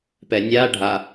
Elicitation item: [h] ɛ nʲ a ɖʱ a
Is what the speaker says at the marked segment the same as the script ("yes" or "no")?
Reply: no